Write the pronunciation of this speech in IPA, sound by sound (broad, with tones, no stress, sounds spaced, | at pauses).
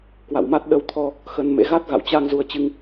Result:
k w a̰˧˨ w m a˦˥ t̚ ɗ ə˧ w t̪ʰ ɔ˧ | x ə˧ n m ḛ˧˥ ɣ a˦˥ t̚ ɣ a̰˧˨ w t͡ɕ a˧ ŋ z u˧ ə̯ t͡ɕ ɨ˧ ŋ